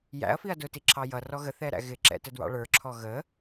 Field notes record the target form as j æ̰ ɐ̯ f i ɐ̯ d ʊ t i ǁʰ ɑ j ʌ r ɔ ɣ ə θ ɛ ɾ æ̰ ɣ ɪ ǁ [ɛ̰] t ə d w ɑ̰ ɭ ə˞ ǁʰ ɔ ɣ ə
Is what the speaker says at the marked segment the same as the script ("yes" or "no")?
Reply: yes